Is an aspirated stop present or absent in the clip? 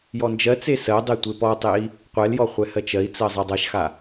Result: absent